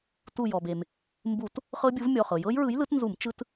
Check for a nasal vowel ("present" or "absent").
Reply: absent